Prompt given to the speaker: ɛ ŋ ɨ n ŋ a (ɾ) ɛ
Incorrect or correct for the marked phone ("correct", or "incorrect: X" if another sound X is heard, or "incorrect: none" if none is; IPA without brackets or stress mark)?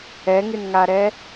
correct